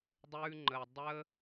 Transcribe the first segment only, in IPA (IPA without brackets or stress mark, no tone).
dˤ